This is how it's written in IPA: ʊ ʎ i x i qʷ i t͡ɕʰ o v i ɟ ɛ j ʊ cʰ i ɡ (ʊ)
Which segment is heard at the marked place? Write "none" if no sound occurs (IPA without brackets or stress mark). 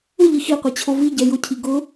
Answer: ʊ